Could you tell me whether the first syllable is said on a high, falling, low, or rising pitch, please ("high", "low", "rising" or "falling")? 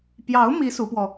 rising